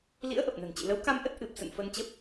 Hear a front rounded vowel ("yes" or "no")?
no